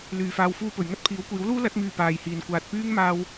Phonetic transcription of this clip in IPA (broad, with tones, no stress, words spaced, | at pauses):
lyː˨faː˧w fuː˥pɵ˨ɥ ŋɐ˥t̚pʰiː˨˥wkʷiː˨˥wluː˥ lɐ˨˥t̚myː˨ paː˨jhiː˨n kʷaː˨t̚pyː˥ŋmaː˧w